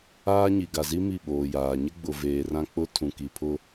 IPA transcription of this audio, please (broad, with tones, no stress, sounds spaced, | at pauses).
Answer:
aː˦ ɲ i˨ ɡ a˨ z i˦ m i˦˨ ɓ oː˨ j aː˨ ɲ ɪ˦ ɡ͡b ʊ˨ v eː˨ r ã˦ k͡p ʊ˦ tʰ ũ˨ k i˨ pʰ ʊ˦